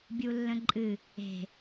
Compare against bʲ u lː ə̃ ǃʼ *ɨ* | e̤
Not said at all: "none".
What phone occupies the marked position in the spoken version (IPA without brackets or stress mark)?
ɨ